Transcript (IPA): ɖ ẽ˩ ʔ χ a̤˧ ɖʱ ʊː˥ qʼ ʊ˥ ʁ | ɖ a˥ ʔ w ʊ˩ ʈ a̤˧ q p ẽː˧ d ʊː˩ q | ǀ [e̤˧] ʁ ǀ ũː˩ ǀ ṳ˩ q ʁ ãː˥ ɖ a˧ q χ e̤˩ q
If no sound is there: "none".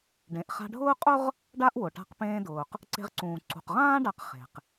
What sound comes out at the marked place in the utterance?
e̤˧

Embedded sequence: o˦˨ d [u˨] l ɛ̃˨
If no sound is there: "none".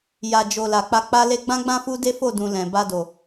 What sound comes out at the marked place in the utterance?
ũ˨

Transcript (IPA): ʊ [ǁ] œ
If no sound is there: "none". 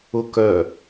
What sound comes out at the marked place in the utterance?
k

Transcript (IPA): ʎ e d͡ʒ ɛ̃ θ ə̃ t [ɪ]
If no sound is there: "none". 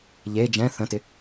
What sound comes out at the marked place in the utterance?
ɪ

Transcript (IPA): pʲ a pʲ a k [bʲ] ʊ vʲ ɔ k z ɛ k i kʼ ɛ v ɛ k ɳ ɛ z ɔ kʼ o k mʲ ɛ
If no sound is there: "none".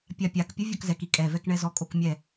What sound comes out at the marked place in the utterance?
pʲ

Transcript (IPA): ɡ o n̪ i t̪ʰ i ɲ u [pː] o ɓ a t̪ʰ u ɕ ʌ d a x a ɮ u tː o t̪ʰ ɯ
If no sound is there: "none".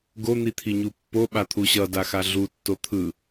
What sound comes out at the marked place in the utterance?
pː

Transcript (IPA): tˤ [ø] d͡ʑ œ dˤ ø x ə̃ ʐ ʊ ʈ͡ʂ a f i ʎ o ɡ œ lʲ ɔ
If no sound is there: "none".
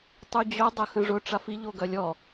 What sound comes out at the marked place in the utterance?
y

